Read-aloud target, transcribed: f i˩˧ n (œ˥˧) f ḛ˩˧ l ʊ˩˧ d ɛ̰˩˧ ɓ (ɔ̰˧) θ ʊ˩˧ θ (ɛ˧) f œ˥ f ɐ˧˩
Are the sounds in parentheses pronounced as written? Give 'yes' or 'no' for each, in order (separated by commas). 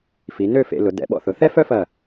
no, yes, no